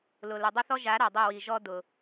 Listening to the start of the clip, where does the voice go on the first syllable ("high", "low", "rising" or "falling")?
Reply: low